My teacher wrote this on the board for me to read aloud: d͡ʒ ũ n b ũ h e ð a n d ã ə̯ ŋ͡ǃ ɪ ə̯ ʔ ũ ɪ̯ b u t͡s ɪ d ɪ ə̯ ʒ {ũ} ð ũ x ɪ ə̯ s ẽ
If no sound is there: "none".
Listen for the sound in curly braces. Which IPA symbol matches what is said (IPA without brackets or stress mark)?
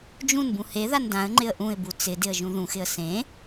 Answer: ũ